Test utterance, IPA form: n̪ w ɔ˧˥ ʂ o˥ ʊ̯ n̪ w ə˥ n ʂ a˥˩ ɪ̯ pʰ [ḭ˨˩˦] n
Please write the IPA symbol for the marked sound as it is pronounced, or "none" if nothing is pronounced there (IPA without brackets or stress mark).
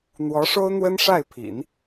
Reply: ḭ˨˩˦